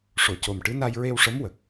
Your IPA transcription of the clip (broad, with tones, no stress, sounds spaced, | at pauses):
ʂ o˨˩˨ c o˨˩ m ʈ ɨ˧˥ n a˧ j ɹ e˧ w ʂ ə˧˥ m w ə˨˩ k̚